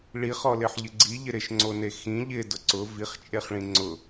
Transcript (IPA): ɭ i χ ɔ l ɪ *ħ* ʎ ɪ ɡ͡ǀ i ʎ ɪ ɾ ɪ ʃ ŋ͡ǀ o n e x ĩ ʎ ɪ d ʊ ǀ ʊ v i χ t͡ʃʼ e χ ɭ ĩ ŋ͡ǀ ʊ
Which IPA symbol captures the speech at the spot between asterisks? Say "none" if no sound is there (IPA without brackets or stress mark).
ħ